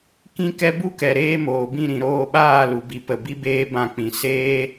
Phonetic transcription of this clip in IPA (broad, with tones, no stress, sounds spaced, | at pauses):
k ĩ˦ k ɛ˦ b u˦ k ɛ˨ ɾ eː˧ m oː˨ b ĩ˦˨ ɾ ĩ˨ ɾ oː˧ ɓ aː˦˨ l u˨ b i˨ p ə˨ b i˦ b eː˦ b ã˧ k͡p ĩ˨ s eː˦